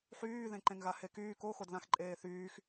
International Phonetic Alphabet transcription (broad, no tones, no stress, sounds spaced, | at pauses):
ħ yː ð ẽ ǃ ẽ ŋ ɣ a h e k yː k o x o d ð ã x ǃʼ eː θ yː x